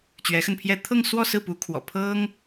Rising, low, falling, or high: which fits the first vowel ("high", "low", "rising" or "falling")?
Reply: rising